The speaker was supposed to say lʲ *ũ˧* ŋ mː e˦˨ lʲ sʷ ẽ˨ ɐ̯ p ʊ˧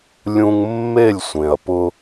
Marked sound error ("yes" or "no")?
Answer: no